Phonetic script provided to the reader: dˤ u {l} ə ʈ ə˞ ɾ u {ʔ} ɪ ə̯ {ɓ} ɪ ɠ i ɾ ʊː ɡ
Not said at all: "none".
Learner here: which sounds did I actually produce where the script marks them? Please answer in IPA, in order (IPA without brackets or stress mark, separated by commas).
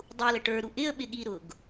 l, ʔ, ɓ